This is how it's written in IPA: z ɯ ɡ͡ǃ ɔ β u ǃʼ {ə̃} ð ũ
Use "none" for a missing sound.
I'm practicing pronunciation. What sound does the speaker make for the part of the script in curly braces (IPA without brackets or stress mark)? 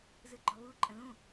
ə̃